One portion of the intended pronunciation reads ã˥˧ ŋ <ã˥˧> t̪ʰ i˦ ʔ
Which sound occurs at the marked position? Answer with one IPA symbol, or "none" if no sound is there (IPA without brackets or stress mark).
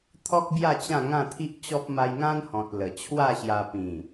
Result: ã˥˧